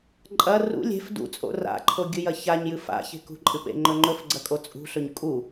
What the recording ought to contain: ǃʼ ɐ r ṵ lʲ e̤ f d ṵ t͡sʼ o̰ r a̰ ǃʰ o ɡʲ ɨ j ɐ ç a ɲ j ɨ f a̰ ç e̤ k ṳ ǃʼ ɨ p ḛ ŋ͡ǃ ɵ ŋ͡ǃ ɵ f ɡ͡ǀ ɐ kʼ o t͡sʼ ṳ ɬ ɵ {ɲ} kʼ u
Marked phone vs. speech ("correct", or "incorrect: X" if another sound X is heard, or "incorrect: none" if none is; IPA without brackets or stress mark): correct